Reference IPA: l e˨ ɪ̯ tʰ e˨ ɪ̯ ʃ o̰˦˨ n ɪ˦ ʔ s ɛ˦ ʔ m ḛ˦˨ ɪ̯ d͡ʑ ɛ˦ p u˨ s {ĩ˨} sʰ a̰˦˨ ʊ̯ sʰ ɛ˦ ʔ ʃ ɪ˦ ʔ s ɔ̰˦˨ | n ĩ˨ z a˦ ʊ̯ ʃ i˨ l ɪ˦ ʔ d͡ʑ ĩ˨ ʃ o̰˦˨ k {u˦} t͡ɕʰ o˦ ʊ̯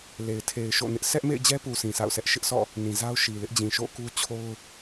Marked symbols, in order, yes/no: yes, yes

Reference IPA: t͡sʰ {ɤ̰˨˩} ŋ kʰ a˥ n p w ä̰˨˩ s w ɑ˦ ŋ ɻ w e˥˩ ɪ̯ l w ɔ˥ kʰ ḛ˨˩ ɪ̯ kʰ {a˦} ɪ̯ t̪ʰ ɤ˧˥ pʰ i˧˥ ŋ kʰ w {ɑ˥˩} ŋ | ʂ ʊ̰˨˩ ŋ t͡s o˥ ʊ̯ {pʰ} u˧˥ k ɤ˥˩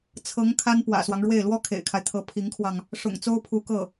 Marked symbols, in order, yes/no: no, yes, no, yes

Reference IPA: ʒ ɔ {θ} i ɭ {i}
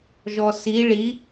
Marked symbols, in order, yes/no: no, yes

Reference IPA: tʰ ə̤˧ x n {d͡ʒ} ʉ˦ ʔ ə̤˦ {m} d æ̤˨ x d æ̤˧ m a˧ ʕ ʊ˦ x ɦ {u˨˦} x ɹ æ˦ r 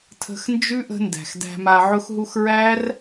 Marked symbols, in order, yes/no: yes, no, no

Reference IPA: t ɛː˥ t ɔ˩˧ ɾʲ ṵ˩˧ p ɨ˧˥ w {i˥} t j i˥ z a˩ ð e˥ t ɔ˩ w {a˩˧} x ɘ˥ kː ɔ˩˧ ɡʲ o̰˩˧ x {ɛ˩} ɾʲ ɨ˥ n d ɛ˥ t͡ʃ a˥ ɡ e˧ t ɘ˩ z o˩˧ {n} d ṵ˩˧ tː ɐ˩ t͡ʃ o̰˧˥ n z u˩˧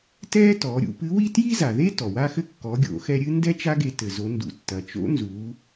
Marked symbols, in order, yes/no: yes, no, no, yes

